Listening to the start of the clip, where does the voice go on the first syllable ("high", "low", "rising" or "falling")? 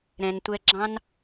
low